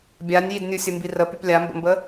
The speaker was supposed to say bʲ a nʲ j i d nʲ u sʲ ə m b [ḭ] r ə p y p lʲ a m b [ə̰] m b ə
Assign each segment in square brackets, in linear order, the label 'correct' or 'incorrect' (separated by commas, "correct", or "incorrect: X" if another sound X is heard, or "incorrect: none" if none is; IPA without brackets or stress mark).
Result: incorrect: i, correct